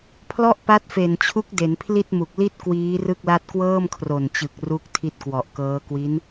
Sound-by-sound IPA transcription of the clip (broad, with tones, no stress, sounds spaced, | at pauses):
pʰ l ɔ˥˩ ʔ p a˦˥ t̚ f e˨˩ n t͡ɕʰ u˦˥ k̚ d e˩˦ n pʰ l i˥˩ t̚ m u˨˩ k̚ l i˥˩ t̚ k w iː˦˥ r ɯ˥˩ k̚ l a˥˩ t̚ k w ɤː˥˩ m kʰ r o˨˩ n t͡ɕ ɯ˨˩ k̚ r u˥˩ k̚ tʰ i˥˩ t̚ k w ɔ˨˩ ʔ k ɤː˦˥ k w i˦˥ n